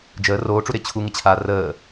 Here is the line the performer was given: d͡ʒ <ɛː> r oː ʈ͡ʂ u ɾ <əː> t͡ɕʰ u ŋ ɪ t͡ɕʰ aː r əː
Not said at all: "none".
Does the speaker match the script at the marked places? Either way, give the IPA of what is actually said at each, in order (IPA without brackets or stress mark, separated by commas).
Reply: əː, ɪː